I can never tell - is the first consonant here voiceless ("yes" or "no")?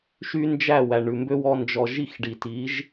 yes